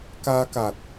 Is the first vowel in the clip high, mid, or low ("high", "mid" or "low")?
low